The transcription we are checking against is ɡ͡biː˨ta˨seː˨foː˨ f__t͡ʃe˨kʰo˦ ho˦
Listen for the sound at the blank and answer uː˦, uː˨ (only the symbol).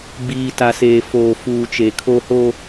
uː˨